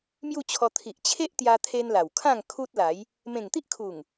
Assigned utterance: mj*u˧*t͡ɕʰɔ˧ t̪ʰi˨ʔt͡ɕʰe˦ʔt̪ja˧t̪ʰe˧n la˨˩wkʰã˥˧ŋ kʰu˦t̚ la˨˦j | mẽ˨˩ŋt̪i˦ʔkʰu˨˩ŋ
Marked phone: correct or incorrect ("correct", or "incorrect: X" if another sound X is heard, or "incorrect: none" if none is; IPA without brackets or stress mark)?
incorrect: u˥˧